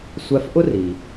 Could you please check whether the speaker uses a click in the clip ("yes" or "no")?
no